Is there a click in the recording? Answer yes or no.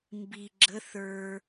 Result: yes